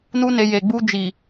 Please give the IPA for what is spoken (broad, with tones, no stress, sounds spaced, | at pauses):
n u˦ n e˧ j e˨ ɡ͡b u˧ d͡ʒ i˨